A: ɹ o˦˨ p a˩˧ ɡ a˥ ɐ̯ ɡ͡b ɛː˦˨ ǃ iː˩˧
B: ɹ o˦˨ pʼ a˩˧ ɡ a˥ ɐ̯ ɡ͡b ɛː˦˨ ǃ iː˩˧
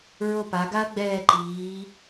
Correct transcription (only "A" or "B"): A